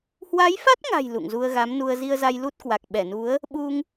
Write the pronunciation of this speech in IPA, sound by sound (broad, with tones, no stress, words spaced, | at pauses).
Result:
hwa˨˦jfa˦˥t̚ŋa̤˨˩j lṵ˧˨ŋzu˧ə̯ɣa˨˦mnu˧ə̯ zi˧ə̯za˧jlu˦˥t̚kwa˨˩k̚ ɓɛ˧˩nu˨˦ə̯ | ɓu˧ŋ